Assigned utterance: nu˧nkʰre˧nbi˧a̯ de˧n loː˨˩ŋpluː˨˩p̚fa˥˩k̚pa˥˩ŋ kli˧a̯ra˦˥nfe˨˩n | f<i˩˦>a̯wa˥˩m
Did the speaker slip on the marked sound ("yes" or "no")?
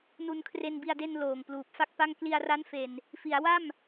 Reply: no